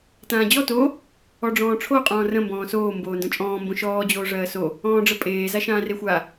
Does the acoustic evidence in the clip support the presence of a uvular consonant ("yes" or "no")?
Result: yes